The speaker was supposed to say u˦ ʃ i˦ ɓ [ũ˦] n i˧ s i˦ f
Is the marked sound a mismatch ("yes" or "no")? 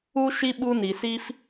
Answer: yes